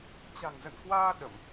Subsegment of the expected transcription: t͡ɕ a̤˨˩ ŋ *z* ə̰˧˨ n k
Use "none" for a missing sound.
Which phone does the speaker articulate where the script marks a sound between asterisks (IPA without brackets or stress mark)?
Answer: z